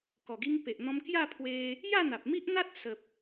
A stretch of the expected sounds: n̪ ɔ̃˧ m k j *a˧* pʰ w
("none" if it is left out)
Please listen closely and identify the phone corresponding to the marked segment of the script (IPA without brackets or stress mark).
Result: a˥˧